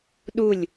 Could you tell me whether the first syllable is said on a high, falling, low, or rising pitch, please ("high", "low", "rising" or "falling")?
falling